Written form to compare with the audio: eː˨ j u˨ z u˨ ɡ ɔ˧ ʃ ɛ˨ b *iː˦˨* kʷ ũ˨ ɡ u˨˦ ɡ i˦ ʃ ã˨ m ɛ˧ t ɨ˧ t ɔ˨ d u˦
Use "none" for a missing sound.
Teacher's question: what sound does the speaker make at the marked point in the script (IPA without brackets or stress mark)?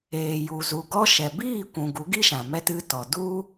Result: iː˦˨